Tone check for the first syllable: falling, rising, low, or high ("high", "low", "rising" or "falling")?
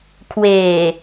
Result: low